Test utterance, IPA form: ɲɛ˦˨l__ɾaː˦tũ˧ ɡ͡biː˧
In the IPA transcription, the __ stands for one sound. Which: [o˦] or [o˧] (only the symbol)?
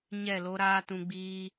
o˦